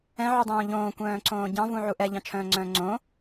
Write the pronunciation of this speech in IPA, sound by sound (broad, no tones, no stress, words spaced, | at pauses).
ɛ̃ʕydˤõː ʎõːkʷœ̃ːǀõː ɟɑ̃vũʕu ʔɛʎɑ̃t͡ʃʰœ̃ːŋ͡ǀœ̃ː ŋ͡ǀõ